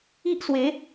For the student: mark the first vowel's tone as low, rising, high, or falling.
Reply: high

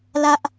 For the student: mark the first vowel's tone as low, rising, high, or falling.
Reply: low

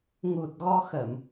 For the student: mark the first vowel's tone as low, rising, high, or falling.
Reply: low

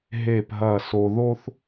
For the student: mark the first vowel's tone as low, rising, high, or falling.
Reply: falling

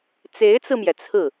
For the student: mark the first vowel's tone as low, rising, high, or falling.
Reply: rising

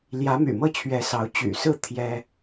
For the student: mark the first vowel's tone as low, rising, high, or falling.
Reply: rising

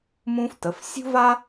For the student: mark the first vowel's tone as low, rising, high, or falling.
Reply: high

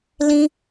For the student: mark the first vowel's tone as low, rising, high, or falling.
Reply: high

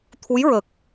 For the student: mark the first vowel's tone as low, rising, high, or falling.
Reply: rising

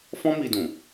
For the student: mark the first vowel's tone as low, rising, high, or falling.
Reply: high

